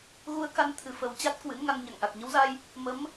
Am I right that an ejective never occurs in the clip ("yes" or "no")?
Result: yes